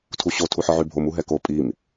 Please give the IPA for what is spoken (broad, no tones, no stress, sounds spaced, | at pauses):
tʰ u ɕ o tʰ u ħ ɔ ʕ y bʱ o m u ɦ ɛ k o pʼ i m